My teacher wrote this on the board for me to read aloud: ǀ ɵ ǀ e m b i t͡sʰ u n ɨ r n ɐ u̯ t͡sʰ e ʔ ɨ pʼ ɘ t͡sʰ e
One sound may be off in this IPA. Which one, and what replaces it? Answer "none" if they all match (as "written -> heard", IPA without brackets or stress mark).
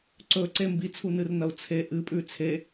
ɘ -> ʉ